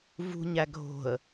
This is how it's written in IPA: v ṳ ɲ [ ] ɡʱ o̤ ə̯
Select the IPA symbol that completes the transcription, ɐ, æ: æ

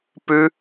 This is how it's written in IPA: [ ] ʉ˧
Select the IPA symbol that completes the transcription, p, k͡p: p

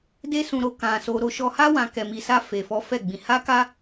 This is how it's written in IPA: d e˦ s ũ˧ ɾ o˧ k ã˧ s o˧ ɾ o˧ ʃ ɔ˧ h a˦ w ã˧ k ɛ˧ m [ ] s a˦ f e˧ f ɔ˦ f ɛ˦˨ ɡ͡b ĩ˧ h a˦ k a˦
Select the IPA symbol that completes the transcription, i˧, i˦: i˧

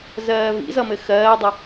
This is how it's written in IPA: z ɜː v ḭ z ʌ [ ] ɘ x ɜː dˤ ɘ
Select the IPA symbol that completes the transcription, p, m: m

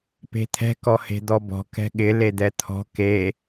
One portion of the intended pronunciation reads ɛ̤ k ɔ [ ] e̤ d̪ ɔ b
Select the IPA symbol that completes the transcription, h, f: h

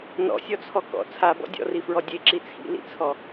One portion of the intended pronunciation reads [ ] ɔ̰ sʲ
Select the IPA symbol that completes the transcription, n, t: n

